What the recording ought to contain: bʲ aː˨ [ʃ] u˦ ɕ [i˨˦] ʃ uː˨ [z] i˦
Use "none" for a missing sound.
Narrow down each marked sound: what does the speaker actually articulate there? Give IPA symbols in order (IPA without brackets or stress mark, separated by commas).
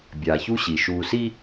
ç, i˨, s